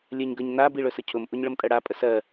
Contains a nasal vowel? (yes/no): no